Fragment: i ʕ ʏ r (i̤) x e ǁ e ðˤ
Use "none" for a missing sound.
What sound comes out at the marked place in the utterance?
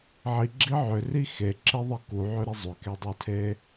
i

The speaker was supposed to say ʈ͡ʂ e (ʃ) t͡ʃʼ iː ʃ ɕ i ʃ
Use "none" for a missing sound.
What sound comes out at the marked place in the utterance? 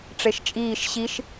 ʃ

